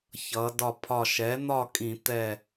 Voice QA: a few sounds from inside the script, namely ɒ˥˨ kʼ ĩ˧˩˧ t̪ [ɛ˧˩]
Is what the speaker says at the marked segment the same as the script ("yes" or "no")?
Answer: yes